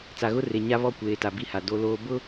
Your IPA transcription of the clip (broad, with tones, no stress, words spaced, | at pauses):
t͡sa˨ɣʊ˦re˨ ɲa˦βɔ˦kʷeː˨ta˨ bi˦ha˨do˦loː˦ bʊ˦